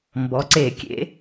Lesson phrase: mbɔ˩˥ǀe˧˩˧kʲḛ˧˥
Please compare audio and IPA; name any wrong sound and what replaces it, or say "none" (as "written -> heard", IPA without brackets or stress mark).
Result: none